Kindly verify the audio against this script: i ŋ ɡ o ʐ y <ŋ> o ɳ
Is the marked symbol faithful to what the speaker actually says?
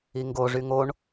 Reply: yes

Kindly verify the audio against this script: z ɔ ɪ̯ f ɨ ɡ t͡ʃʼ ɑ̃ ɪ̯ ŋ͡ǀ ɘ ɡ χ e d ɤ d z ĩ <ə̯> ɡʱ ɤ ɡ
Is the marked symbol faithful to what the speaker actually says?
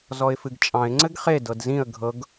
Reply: yes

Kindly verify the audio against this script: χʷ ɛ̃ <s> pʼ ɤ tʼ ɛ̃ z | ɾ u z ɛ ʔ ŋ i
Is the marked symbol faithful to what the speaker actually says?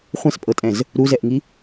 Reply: yes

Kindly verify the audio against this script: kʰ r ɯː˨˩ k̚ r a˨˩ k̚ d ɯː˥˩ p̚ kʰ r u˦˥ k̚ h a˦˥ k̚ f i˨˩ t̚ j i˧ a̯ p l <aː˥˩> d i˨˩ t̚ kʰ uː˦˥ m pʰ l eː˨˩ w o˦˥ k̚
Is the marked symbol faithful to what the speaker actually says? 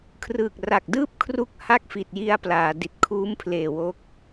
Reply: no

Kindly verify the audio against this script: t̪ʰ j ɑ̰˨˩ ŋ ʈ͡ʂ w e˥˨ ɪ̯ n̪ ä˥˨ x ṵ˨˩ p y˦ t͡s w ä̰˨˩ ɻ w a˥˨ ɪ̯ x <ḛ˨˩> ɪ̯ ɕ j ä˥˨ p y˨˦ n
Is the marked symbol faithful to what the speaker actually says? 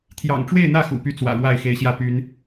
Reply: no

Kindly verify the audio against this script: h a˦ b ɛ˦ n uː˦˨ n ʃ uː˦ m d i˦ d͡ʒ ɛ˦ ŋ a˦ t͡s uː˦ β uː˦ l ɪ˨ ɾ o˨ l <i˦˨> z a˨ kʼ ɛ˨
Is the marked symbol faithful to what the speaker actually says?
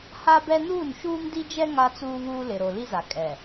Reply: no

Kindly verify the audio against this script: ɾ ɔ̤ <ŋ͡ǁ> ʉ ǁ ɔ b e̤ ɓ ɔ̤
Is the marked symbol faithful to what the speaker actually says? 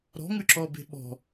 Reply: no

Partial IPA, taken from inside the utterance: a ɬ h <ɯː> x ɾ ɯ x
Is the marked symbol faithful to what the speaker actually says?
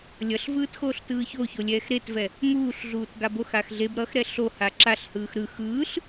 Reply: yes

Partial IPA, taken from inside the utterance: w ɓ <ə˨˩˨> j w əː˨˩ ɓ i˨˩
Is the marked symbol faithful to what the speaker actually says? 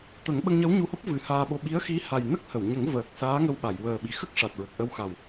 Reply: no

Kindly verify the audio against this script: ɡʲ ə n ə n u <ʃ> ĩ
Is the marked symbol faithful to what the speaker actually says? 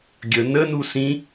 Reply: no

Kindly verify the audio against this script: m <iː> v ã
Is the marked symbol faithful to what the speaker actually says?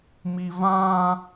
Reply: no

